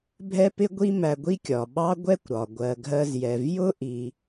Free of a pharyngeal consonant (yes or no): yes